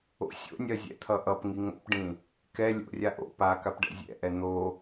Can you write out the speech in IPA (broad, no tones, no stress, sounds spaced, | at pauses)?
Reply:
o̰ sʲ o̰ nʲ ɜ zʲ ɛ̰ t̪ʰ ʌ ʔ ʌ p ŋ i ŋ o̰ p ɖ ĩ | k ɛ lʲ o̰ rʲ a ʔ o̰ p a k a p ɖ ɛ̰ zʲ ɛ̰ ʔ ɛ n̪ o